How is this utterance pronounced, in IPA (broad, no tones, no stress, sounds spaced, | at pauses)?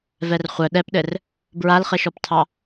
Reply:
v ɛ r χʷ œ ɗ ɛ p ɗ ɘ r | b ɹ a l χ ɘ ʃ ɔ p tʰ ɑ